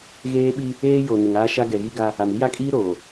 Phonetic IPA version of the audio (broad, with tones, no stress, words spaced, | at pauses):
ɣeː˦ɓi˦ | eː˦jo˨ nɪ˨ŋaː˦ ʃa˦ɡɛ˨ɣi˦ ɡa˦ | a˨mi˦ja˦kʼiː˦ ɾoː˨